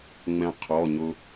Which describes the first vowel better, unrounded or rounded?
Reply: unrounded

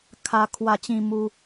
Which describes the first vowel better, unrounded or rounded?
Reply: unrounded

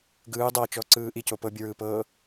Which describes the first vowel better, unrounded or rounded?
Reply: unrounded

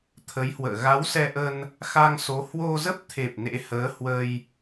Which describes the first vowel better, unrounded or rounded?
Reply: unrounded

